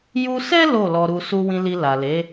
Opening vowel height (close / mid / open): close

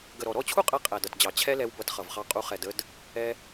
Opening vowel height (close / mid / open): mid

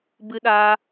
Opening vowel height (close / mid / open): close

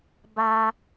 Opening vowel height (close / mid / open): open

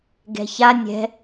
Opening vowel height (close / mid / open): mid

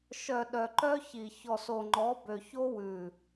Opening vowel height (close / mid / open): mid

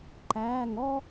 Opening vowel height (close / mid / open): open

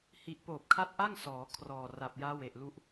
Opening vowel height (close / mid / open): close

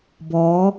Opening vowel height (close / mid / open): mid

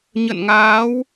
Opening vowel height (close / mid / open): mid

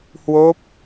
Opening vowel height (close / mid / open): mid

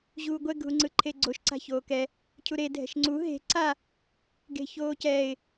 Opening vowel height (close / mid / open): close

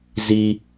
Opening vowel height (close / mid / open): close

